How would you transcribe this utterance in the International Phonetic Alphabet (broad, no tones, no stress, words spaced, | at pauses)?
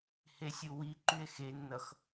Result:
hesʲuwi ǃye̯xenːʌx